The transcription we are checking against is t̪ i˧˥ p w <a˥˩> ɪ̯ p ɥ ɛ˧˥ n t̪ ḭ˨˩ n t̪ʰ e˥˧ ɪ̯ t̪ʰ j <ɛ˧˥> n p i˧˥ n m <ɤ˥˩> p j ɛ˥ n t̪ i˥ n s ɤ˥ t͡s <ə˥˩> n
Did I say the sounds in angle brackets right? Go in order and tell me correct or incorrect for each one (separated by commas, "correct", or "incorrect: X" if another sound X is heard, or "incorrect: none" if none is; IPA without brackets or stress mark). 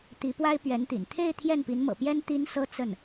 incorrect: a˥, incorrect: ɛ˥˩, incorrect: ɤ̰˨˩, correct